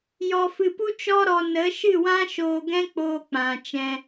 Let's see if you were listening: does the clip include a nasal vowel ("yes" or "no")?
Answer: yes